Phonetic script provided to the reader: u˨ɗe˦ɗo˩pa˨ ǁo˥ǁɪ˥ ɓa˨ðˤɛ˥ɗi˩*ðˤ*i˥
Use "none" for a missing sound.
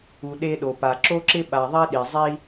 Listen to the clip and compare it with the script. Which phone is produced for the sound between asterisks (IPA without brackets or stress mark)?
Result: zˤ